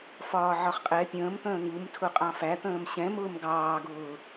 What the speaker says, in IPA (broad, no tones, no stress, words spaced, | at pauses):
fɒːʕɒχqʼɛ pʲə̃ːmt̪ə̃ː ŋumtʰʊ qʼɑ̃fæt̪ə̃ːm ɕɛ̃mʊːm ɡɑːɡʊː